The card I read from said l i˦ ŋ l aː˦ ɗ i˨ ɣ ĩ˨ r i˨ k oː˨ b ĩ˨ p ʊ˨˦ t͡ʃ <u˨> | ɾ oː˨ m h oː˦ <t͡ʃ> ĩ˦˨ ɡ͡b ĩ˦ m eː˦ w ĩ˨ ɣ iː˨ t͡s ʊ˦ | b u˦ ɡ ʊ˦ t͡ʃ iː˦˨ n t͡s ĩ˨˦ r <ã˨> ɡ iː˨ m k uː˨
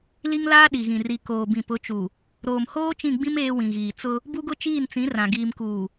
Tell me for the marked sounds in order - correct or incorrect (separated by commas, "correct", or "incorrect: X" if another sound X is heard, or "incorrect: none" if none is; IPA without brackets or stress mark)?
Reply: correct, correct, correct